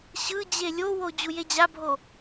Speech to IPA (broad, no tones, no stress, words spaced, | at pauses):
ɕɯ d͡ʑelʲowo d͡ʑujed͡ʑabʱo